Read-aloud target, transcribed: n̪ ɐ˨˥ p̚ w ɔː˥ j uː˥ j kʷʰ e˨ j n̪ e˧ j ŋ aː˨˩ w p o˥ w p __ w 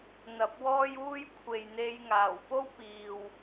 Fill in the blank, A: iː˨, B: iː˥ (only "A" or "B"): A